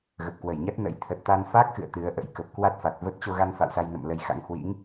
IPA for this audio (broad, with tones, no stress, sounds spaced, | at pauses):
ɣ ə˨˩ p̚ k w ə˧˩ j ɲ a˦˥ t̚ n ə̰˧˥ j t̪ʰ ə˨˩ t̚ t̪ a˧ n f a˦˥ k̚ x ɨ̰˧˨ ə̯ t̪ ɨ˨˦ ə̯ ʔ ə̰˧˥ j k ə˨˩ p̚ k w a˦˥ t̚ f a˨˩ t̚ v ə˦˥ t̚ t͡ɕ o˧ ɣ a˧ n f a̰˧˨ w s a˧ j n ə̰˧˨ m l ə˨˦ j x a̰˧˥ ŋ h w ḭ˧˥ ŋ